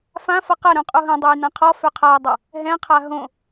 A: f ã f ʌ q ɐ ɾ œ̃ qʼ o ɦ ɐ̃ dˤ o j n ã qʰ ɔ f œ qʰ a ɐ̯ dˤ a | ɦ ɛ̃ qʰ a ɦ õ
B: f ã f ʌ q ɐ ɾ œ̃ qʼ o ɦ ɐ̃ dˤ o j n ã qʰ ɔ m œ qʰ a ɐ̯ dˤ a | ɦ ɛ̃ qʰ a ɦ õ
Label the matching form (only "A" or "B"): A